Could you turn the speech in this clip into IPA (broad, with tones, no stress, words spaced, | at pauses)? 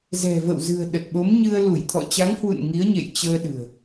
zɛ̤˨˩və̰˧˨wzɨ̤˨˩ə̯ ɗə˨˩t̚ɓo˨˦mɲɨ˧ə̯ lu˧˩jt̪ʰɔ̰˧˨t͡ɕa˨˦ŋhwṵ˧˨n ŋi˨˦ə̯ɲḛ˧˨j t͡ɕəː˧ɗɨ̤˨˩ə̯